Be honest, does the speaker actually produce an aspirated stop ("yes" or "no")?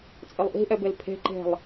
yes